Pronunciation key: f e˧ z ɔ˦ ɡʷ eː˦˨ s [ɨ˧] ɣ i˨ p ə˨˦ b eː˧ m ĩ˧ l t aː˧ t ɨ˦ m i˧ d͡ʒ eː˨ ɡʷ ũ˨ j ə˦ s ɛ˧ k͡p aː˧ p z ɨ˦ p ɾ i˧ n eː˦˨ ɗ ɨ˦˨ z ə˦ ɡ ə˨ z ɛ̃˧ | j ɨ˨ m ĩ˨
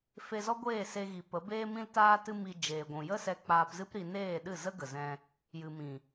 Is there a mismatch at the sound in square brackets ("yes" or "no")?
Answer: yes